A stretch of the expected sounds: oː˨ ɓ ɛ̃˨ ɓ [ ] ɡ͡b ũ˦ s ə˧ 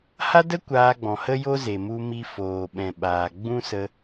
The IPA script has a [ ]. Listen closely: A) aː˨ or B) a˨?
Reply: A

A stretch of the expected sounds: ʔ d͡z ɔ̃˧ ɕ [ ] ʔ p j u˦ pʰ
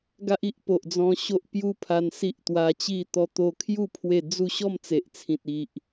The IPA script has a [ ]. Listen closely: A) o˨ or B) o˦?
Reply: B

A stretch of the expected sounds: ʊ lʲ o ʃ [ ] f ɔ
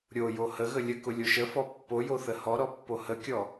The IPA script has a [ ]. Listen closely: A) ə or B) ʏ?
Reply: A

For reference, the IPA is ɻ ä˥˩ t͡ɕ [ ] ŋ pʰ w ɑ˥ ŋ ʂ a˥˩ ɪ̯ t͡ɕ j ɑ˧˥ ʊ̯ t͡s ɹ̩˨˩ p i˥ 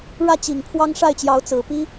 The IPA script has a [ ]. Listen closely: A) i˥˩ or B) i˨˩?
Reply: B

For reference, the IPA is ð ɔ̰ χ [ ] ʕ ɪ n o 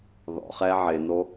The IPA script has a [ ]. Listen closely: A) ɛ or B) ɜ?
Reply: A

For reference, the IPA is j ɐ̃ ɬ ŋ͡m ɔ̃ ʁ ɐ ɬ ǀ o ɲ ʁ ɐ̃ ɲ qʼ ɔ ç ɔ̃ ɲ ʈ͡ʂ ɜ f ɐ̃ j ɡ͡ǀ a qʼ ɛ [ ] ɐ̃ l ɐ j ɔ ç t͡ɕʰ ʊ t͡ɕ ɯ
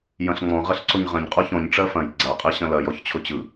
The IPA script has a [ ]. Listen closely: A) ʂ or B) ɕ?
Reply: B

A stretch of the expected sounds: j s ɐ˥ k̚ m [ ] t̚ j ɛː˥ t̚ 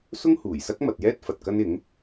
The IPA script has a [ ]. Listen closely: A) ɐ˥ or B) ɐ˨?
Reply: B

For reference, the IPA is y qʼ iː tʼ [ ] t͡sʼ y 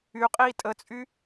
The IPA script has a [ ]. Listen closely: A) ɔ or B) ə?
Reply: B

